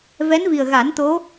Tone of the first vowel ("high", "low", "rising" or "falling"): rising